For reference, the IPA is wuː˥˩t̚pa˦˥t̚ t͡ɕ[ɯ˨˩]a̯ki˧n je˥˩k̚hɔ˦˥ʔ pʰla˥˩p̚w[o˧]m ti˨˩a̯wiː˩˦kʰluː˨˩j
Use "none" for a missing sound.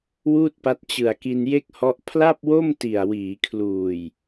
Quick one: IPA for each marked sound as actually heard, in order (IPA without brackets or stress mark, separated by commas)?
ɯ˨˩, o˥˩